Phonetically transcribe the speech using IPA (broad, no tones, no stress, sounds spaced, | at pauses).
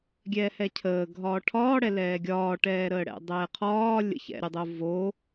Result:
ɡʲ ɛː h ɛ cʰ əː ɡʱ ɒː ʈʰ ɒː ɽ ɛ l ɛː ɡʲ ɒː ʈ ɛː ɾ əː ɽ ɛ̰ dˤ ɛː qʰ ɒː lʲ ə̰ ç ɛ̰ ɾʲ ʌ dˤ o v o